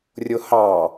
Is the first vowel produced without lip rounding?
no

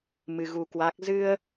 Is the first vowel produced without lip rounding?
yes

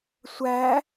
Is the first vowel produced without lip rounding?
yes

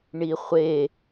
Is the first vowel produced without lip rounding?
yes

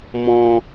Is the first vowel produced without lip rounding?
no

